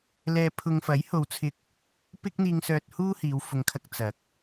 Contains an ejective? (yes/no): no